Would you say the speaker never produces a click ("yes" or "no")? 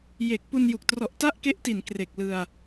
yes